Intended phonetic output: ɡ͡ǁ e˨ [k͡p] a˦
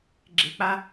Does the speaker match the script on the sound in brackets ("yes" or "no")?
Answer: yes